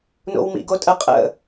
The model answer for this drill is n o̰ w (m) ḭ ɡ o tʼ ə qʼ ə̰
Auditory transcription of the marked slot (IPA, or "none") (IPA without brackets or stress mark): m